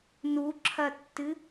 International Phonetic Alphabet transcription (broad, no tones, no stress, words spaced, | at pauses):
nuǁʰɐtːɨ